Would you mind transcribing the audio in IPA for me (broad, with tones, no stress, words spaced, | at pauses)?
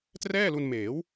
trɛː˥˩lu˧nmeː˩˦w